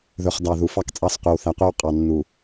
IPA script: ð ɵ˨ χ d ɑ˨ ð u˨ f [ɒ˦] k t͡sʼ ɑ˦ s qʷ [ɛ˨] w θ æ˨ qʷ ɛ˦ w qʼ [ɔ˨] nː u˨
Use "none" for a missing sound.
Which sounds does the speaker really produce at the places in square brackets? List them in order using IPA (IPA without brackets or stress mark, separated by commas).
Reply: ɑ˦, ɛ˨, ɑ˨